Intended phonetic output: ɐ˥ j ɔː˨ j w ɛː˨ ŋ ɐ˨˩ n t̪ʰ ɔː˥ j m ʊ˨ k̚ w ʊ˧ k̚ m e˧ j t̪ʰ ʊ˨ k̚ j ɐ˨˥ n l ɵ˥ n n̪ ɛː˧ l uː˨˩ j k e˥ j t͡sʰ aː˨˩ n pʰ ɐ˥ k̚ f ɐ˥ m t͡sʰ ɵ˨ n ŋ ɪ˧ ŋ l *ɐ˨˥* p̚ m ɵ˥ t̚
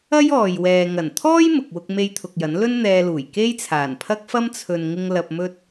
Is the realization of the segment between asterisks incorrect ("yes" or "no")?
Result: yes